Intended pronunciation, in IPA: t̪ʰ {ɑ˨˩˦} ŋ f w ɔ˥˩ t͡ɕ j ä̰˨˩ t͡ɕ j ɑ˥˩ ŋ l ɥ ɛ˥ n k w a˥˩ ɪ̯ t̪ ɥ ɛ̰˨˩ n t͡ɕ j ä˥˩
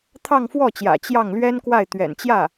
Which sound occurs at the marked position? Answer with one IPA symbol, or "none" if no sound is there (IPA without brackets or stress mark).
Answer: ɑ˥˧